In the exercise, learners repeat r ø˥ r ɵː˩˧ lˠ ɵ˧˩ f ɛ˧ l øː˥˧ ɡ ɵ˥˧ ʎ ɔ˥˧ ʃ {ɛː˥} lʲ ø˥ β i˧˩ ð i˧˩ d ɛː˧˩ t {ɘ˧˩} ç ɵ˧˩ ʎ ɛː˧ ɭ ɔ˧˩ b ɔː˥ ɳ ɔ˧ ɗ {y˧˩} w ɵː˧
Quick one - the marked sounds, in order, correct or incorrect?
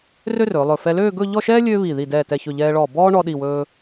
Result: correct, incorrect: ɛ˧˩, incorrect: i˧˩

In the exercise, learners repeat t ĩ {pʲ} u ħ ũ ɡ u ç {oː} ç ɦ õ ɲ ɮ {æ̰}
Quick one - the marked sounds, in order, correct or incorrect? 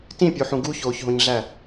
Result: correct, correct, incorrect: æ

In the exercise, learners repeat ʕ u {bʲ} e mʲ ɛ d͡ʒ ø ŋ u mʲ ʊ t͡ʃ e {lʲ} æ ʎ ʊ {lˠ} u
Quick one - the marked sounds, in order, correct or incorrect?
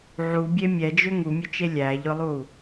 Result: correct, correct, correct

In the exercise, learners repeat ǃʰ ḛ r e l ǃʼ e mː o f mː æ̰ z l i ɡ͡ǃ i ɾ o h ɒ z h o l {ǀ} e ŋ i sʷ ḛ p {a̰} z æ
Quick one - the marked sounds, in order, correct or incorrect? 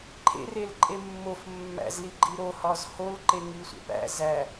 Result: incorrect: ǃ, incorrect: æ̰

